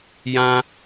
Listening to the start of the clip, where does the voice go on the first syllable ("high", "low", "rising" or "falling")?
high